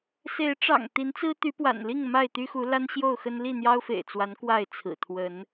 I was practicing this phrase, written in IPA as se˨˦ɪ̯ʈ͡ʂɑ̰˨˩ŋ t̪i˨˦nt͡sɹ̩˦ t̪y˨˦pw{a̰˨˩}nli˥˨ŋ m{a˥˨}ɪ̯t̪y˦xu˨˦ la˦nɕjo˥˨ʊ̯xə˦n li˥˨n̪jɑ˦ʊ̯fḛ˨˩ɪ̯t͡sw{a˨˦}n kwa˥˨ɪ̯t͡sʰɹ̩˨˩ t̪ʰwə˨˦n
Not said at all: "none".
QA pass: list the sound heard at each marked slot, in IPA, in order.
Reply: a̰˨˩, a˥˨, a˨˦

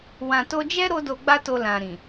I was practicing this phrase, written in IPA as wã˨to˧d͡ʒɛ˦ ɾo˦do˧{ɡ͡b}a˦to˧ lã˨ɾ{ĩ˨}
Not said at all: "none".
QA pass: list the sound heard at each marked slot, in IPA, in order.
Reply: ɡ͡b, ĩ˨

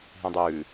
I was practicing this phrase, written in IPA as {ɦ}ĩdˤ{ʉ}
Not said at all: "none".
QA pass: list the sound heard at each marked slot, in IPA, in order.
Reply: ɦ, ʉ

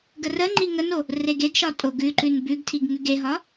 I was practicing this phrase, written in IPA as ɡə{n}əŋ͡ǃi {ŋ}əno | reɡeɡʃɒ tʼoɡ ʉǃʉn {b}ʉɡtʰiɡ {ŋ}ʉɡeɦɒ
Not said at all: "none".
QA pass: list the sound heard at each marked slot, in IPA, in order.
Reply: r, ŋ, b, ŋ

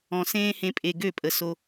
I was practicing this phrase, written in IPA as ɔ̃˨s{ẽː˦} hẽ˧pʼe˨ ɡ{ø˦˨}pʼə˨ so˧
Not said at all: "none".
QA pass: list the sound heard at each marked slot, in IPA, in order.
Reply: ẽː˦, ø˦˨

